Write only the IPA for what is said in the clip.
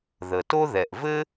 ð ə˩ t o˥ ð ɛ˩ ʔ v ɘ˥

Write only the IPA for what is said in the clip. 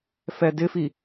f ɛ d ɪ f i

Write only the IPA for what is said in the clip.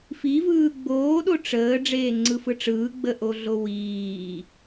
f i v ɯː ɡ͡b oː ɗ o ʈ͡ʂ əː ɖ͡ʐ eː ŋ͡ǀ ɯ f ɯ ʈ͡ʂ ɯː ɡ͡b ə ʔ o ɮ o w iː

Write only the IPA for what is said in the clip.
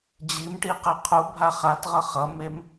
d͡ʑ i m ʈ i q ɛ qʰ u bʱ a χ a t ʁ ʌ χ ʌ m e m

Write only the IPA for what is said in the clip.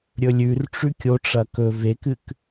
ɾʲ ɵ lʲ ʉ r ʈ͡ʂ ʉ kʲ o ʈ͡ʂ ɐ k ɵ v e k ɨ k

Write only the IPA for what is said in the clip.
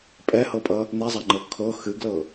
pʼ ɛ h ɤ pʼ ʌ | n̪ e zˤ a ŋ͡ǃ ɤ kʰ ɤ x ɨ ɡ l ɤ

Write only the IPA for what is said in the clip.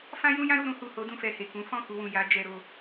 f ã˦ j ũ˦ j ã˦ ɾ u˦˨ ɾ ũ˧ h u˨ h o˨˦ d ũ˦˨ f ɛ˨ h e˨ k ũ˨˦ f ɔ̃˦˨ k u˧ w ũ˨ j a˨˦ d͡ʒ ɛ˧ ɾ o˧

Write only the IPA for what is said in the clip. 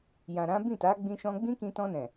j ã˨ ɾ ã˨˦ b ĩ˦˨ t a˨˦ ɡ͡b ĩ˧ ʃ ɔ̃˧ ɡ͡b ĩ˦ k ĩ˧ t ɔ̃˧ n ɛ̃˨

